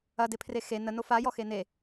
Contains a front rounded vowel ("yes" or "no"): no